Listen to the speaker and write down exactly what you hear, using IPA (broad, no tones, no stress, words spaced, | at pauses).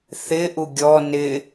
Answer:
θɪʔu ɡʲɔ nɪ